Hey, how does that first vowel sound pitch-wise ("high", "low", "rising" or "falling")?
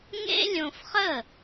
high